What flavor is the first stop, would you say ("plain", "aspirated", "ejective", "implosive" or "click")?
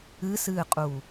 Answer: ejective